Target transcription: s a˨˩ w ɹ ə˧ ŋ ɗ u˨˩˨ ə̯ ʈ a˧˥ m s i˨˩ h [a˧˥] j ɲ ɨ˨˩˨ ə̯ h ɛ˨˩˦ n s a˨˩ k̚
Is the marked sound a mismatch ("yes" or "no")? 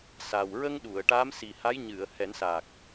no